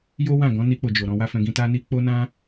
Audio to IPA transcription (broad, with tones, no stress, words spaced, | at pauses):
jo˦wã˦˨ ɡɔ̃˨˦ni˧k͡po˨d͡ʒo˨ ɾɔ̃˧wa˦fɛ̃˧ ɡĩ˧ta˦ni˦ k͡po˦nã˦